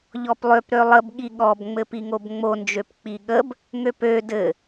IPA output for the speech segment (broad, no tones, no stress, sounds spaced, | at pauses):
ʎ ɔ p lˠ ø p ɾ ø lˠ ə b ɠ i ɠ ɔ b ŋ͡m ɘ p i ŋ o b ŋ͡m o n d͡ʒ ø p k͡p i ɠ ə b | ŋ ø p ø d ɘ